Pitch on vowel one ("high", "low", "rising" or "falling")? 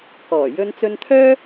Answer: low